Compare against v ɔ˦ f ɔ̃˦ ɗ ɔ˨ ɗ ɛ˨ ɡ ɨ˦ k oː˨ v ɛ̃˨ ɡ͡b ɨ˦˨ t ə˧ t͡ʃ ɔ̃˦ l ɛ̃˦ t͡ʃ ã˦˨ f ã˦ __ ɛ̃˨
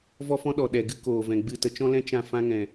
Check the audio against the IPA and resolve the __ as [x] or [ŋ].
ŋ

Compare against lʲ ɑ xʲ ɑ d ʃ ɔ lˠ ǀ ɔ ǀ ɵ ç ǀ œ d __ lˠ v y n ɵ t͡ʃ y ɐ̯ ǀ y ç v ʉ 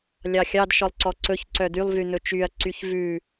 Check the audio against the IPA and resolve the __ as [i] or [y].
y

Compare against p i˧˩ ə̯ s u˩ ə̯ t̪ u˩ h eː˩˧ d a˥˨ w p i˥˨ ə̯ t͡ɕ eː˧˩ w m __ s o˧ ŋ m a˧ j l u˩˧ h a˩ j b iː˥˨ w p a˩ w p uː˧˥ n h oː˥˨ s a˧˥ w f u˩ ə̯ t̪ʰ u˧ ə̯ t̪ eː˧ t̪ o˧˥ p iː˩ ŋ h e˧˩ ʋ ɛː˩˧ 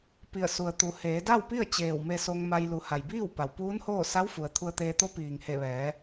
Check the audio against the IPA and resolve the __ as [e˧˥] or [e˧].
e˧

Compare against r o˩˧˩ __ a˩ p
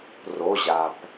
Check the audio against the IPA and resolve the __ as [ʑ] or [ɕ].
ʑ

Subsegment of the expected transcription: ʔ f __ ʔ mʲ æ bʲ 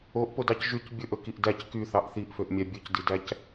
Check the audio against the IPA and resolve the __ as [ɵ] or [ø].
ø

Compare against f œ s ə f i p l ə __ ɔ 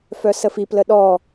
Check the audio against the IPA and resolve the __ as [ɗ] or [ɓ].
ɗ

